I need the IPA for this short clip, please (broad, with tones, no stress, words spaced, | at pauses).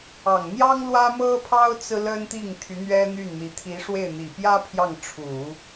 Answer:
ɑ˨˩ŋ n̪jɑ˥ŋlwä˥mɤ˥pʰɑ˥ʊ̯ t͡sɹ̩˥lə˥nt̪i˥˩ŋ t̪ʰy˧˥n̪ɥɛ˥n̪y˥˩nn̪i˧˥ t̪ʰi˧˥ ʂwe˥˩ɪ̯n̪i˨˩ pjä˥ pʰjɑ˥˩ŋ ʈ͡ʂʰu˨˩˦